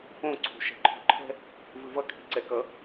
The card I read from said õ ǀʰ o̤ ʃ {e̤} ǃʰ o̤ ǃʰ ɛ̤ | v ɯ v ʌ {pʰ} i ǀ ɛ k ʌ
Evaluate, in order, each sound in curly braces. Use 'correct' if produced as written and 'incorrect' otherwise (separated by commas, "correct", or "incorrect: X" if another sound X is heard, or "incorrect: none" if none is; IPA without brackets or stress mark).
incorrect: ɛ̤, incorrect: kʰ